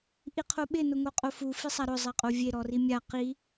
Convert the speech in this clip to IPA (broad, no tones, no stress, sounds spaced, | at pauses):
ʔ i qʰ o ɓ ɪ n ʊ ŋ o qʼ o f u f i sˤ a ɾ ʊ zˤ ɛ qʼ o vʲ e ɾ ɔ r i mʲ a q i